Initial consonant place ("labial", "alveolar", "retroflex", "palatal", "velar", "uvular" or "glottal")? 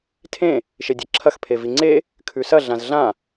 alveolar